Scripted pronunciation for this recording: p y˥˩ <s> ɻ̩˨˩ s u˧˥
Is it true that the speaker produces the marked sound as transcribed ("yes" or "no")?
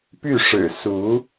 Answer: no